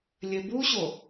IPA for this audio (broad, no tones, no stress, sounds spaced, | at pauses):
lʲ ɘ b u ɕ o